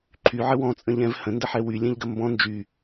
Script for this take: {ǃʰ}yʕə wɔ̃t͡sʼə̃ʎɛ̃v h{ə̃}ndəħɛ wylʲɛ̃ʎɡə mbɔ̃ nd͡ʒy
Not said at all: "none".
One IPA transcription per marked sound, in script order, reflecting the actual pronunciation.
ǃʰ, ə̃

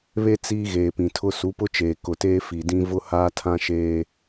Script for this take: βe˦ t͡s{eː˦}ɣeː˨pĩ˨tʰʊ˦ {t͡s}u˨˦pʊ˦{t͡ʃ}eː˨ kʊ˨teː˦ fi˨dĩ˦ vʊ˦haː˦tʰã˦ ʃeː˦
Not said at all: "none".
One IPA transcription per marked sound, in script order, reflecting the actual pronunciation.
iː˦, s, t͡ʃ

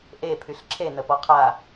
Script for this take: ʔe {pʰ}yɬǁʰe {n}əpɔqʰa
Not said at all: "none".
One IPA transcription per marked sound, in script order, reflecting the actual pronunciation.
pʰ, n

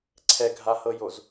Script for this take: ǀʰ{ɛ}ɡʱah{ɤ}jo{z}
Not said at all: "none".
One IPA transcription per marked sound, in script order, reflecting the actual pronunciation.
ɛ, ɤ, z

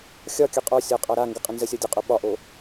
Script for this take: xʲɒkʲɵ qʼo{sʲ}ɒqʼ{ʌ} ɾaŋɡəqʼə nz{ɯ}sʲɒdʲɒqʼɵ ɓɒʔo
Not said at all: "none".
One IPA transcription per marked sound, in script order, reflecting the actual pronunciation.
sʲ, a, ə

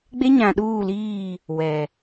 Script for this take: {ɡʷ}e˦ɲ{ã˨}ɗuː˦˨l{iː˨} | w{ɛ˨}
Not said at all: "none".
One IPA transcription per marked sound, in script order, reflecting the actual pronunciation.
ɡ͡b, ã˨, iː˦˨, ɛ˨

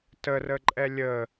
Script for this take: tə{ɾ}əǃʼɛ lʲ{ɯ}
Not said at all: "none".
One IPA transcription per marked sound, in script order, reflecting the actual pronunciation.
r, ə

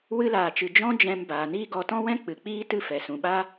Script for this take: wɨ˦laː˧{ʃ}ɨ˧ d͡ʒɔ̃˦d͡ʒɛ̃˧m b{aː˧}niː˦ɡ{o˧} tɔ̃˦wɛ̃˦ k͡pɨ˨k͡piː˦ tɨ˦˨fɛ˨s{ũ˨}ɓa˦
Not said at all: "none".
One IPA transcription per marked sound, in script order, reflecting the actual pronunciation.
t͡ʃ, aː˨, ɔ˧, ũ˨

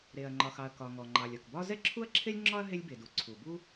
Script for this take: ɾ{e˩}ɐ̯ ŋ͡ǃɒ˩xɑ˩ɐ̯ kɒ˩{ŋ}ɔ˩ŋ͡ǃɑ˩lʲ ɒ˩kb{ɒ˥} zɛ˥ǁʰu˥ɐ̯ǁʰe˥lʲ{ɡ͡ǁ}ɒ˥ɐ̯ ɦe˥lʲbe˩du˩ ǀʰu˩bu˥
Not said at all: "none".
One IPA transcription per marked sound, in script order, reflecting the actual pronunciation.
e˩, ŋ, ɒ˥, ŋ͡ǁ

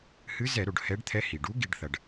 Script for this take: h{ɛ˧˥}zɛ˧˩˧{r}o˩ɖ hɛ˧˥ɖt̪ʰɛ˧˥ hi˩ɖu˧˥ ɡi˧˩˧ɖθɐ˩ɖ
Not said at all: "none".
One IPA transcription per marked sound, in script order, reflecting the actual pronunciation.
ɨ˧˥, ɾ

